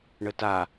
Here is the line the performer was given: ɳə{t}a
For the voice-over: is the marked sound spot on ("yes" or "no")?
yes